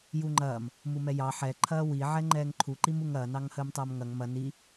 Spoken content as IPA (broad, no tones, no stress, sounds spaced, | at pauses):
j u ŋ͡ǃ ɐː m | m u m ɛ j ɑ ħ ɛ ǃʰ ɐː w i ʕ ɛ ŋ͡ǃ ɛː ŋ ǃʰ u ǃ i m u ŋ ɐː n ɑ ŋ h əː m tˤ ɐː m ŋ ɐ ŋ m ɐ n i